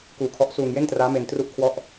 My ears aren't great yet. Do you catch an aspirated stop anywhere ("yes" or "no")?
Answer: yes